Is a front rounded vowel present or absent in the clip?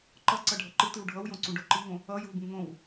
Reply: absent